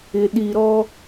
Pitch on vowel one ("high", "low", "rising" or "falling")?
low